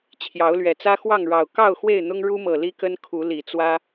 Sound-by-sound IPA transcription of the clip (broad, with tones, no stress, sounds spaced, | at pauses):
t͡ɕʰ j ɑ˨˦ ʊ̯ l ɥ ɛ˨˩ t͡s ä˦ x w ɑ˥˨ ŋ ɻ ɑ˨˩ ʊ̯ k ɑ˥˨ ʊ̯ x w e˥˨ ɪ̯ n̪ ʊ˦ ŋ ɻ u˦ m ɤ˨˩ l i˦ k ə˦ n kʰ u˨˦ l i˨˩ t͡s w ä˦